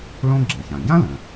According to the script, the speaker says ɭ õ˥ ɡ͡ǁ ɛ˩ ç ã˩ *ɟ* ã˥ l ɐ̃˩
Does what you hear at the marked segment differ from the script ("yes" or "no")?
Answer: no